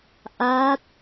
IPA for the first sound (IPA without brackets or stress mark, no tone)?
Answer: ʔ